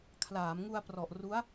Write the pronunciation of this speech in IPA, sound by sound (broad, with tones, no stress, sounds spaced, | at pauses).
kʰ l aː˩˦ m ŋ u˧ a̯ p r ɔ˨˩ ʔ r u˦˥ a̯